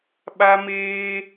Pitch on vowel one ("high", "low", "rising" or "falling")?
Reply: high